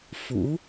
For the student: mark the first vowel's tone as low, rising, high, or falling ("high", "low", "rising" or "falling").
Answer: rising